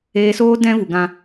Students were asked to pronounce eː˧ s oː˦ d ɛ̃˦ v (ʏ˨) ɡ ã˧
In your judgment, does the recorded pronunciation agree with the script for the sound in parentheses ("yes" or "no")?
no